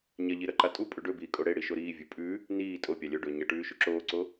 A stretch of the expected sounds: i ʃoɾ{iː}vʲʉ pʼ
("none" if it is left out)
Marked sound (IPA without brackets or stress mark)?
iː